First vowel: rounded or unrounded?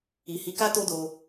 unrounded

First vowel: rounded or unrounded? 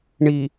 unrounded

